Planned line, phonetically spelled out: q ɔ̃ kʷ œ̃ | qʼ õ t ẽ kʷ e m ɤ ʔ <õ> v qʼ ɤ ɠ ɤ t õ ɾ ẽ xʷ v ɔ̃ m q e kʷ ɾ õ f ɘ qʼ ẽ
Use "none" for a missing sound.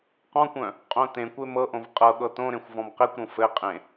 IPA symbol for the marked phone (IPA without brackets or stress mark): õ